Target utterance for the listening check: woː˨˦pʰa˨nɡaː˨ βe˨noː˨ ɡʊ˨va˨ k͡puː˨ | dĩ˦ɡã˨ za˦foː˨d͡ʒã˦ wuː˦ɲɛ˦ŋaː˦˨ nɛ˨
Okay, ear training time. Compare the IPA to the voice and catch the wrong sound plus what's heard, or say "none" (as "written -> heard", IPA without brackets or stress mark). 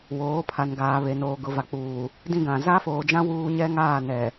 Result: none